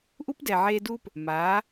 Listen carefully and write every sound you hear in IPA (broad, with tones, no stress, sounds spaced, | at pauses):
ʔ u˦ p d ɛ˨ ʕ eː˧ d uː˦ p | m aː˨˦